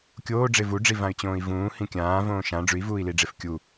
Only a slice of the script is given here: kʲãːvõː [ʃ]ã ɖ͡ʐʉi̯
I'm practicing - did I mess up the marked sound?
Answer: no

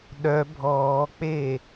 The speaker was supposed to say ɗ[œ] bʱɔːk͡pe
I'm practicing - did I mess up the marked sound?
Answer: no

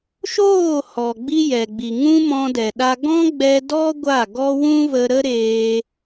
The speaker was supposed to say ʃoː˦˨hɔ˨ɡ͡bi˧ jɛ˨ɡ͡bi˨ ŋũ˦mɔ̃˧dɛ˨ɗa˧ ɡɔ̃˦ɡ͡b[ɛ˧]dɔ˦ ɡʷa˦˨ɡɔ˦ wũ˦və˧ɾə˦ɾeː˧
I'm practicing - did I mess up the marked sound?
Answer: no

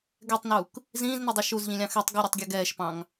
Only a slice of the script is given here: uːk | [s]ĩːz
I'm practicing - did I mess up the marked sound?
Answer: yes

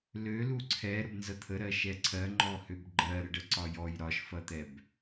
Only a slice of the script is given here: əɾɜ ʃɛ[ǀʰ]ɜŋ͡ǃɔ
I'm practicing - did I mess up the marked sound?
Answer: no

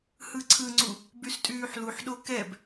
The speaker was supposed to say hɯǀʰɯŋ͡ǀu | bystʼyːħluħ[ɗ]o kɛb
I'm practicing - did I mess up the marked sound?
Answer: no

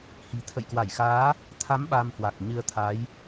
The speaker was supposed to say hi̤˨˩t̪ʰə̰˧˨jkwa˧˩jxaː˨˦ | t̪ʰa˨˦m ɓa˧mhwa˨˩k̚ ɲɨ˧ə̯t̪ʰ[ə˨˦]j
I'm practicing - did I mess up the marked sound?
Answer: yes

